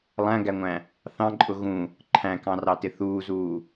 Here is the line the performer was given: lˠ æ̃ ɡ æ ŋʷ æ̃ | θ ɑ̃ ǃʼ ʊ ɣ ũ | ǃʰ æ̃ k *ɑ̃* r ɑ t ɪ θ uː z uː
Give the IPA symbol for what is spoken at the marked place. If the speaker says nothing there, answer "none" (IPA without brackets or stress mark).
ɑ̃